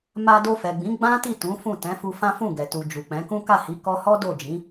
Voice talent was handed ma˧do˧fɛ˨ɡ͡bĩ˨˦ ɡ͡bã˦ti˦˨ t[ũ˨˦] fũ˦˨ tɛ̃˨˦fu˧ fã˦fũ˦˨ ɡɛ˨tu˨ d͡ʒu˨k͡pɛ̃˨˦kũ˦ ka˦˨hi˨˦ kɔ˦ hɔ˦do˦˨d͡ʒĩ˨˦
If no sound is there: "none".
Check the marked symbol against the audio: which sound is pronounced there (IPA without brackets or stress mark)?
ũ˨˦